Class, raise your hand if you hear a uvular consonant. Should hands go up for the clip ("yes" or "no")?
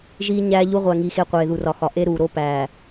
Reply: yes